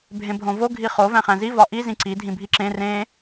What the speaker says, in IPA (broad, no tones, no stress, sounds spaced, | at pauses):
bʱ ẽ bʱ õ v o ɡʱ i χ o v æ̃ χ æ̃ z i v ɒ ʔ i z ĩ ǀ i dʱ ĩ bʱ i ǁ ẽ r ẽ